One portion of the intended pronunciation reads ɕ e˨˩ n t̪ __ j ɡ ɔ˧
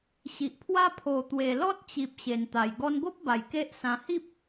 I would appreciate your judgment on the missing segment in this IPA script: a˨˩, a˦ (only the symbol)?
a˨˩